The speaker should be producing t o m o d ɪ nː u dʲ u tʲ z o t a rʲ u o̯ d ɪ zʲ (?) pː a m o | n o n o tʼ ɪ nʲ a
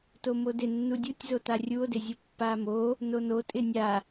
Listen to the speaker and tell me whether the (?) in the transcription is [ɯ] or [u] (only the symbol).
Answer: u